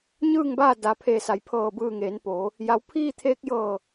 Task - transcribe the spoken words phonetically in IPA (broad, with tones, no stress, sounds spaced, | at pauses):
ɲ ɯː˥˨ ŋ b aː˥˨ d a˩ pʰ eː˧˩ s a˩˧ j pʰ ɤː˧˩ b ɯː˧˩ ŋ eː˩˧ n p oː˩˧ | j a˩ w pʰ iː˥˨ t̪ʰ eː˧ k̚ j ɤː˧˩